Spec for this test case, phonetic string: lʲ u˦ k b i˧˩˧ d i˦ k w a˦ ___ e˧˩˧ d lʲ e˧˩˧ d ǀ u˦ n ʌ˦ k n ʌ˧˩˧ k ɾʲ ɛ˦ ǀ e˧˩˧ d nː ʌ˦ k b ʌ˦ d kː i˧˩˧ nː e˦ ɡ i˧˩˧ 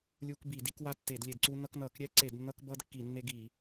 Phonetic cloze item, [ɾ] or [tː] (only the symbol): tː